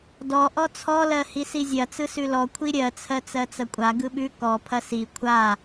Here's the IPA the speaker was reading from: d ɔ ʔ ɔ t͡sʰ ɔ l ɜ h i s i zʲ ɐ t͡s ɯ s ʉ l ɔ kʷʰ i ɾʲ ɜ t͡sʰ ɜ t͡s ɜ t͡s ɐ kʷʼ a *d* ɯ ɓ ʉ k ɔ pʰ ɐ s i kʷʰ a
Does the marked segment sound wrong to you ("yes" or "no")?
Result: yes